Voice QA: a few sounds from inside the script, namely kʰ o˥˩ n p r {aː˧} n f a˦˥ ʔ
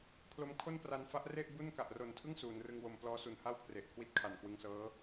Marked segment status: incorrect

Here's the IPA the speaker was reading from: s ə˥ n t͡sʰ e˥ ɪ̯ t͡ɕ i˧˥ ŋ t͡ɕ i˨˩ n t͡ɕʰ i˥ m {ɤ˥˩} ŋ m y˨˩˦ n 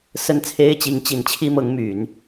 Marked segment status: incorrect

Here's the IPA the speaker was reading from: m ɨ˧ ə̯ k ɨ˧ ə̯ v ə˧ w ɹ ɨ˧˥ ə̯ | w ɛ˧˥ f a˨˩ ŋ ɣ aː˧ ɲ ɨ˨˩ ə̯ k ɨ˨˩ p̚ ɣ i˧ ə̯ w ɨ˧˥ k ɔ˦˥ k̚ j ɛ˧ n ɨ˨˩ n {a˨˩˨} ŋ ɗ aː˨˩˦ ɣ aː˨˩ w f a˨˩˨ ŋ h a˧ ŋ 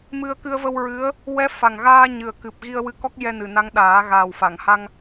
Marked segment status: incorrect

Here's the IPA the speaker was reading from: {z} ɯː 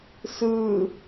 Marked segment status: incorrect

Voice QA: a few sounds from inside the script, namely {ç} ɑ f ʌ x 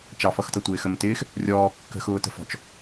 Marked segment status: incorrect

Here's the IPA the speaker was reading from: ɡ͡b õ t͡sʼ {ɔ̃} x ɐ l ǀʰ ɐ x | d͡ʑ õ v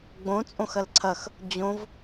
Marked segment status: incorrect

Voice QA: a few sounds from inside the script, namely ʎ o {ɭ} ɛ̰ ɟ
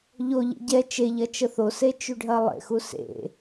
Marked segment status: incorrect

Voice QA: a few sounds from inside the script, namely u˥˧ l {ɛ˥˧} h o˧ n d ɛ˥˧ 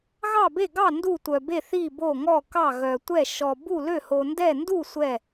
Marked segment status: incorrect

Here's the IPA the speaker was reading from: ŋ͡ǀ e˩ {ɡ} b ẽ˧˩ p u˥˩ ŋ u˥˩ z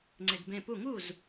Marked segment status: correct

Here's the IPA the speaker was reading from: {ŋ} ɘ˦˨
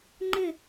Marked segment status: incorrect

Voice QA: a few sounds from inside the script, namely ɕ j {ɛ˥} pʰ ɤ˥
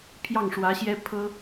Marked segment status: correct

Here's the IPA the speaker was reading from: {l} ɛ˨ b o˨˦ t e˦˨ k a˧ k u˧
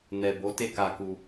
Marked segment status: incorrect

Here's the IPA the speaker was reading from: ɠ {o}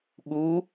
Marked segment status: incorrect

